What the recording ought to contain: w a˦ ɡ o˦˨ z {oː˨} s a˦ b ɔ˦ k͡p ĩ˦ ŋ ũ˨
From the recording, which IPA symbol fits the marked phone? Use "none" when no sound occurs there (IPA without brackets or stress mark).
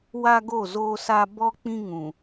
oː˦